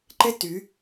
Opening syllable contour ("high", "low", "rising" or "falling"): high